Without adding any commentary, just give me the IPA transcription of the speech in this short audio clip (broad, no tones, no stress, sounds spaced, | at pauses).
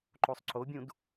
ǃ o sˤ ǀ o bʲ ũ d